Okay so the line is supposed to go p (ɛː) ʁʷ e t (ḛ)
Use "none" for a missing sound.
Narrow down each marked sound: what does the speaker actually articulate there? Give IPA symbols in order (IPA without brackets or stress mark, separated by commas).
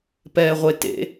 ɛː, ḛ